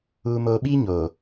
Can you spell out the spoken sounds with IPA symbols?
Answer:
uː˨moː˨ɓiː˦ ɲoː˨

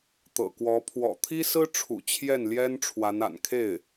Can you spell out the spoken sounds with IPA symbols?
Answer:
t̪ɤ̰˨˩kwɔ˧˥ pʰwɔ̰˨˩t̪ʰi˥sɹ̩˥ʈ͡ʂʰṵ˨˩ t͡ɕʰjɛ˥˩nljɛ˥n ʈ͡ʂʰwa˧˥na̰˨˩n kʰe˥˩ɪ̯

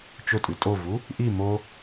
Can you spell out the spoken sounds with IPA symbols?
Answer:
t͡ʃɵtʼʉ tʼovu | ʔi mo

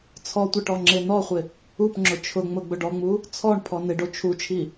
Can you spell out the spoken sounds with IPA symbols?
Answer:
t͡sʰɔtʷɪ ʈɔŋ͡ǁenɔχʷɪ | upŋ͡ǁʊ t͡ʃʰʊŋ͡mʊ ɡ͡bʊɖɔŋ͡mu | t͡sʰɔɳ pʰɔnɪɖo t͡ʃʰut͡ʃʰi

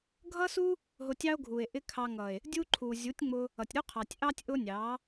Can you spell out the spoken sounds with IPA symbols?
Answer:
ɡʱʌ˦su˦ | ɦʊ˧tʲɑ˦o̯ɡʱu˨e̯ ʔɪ˦kʰɑ˧ ŋʌ˨e̯ | dʲu˦ǃʰu˨ zʲu˨˦tʲŋ͡mʊ˧ | ʌ˨tʲɾu˦qʰɑ˨tʲʔɑ˦tʲ ʔʊ˦nʲɑ˨˦

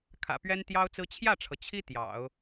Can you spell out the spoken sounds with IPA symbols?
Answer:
kʰä̰˨˩pɥɛ˥n t̪jɑ˥ʊ̯t͡sɹ̩˥ t͡ɕʰjä˥˩ʈ͡ʂʰɤ˩ t͡ɕʰi˥ t̪jɑ̰˨˩˦ʊ̯

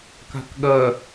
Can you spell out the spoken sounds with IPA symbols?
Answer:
ka̤kɠɐ

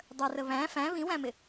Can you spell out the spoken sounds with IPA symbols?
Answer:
dˤərə βæ̃ fæ̃ βĩwæ̃mɪ

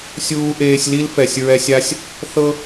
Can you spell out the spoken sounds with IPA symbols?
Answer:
sʲuː˧ʔeː˧sʲ li˦lfɛ˨sʲɹɛ˧sʲa˦sʲ | θɤ˦

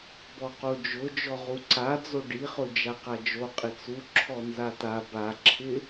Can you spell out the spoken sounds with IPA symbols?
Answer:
bɔqod͡ʒʊ d͡ʒɔʁuǀad͡zo ɖiχʊ d͡ʒaqad͡ʒo qʼɪt͡su ǁʰɔnzata baǁʰɪ

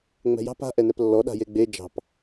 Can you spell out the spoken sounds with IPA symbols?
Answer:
ŋ͡mɛ̤jɑ̤p a̤ʔɛnɛp lːɔ ɗa̤jeɡ͡be d͡ʒɑ̤p

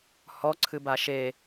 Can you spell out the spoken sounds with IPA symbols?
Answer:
hɔ ǀʰɨbaʃe

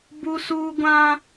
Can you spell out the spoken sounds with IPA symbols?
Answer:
bu˦suː˦ ɡʷã˦

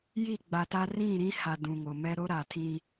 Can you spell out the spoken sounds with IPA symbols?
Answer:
ji˦˨ɡ͡ba˨ta˦ rĩ˦˨ ɾĩ˦ha˨ dũ˨ŋo˨mɛ˦ ɾo˦ ɾa˨tʰĩ˦

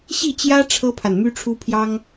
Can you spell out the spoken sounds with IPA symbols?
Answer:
ɕi˥˩t͡ɕjä˥ ʈ͡ʂʰɤ˥pʰa˨n my˥ʈ͡ʂʰu˥pʰjɑ˥ŋ

